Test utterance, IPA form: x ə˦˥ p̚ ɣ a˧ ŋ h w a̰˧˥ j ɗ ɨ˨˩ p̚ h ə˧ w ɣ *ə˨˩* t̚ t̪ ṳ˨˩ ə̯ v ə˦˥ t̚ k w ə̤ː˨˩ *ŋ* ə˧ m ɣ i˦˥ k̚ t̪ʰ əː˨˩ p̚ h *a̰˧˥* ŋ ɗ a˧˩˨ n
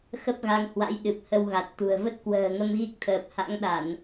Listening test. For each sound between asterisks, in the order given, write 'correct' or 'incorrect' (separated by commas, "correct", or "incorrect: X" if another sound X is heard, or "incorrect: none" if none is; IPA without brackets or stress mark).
incorrect: a˨˩, correct, correct